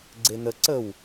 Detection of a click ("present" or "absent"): present